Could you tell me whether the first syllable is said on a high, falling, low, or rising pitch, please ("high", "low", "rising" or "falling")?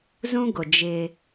high